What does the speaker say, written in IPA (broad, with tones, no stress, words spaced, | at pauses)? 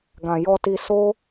ɡã˨ jɔ˧ti˧ so˦